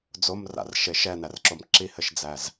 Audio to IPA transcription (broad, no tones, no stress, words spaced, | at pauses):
d͡zomra̰r ʃeʃɛnærǁom ǁihɘʃd͡zæz